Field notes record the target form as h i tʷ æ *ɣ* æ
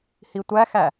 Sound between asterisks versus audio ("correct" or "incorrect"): incorrect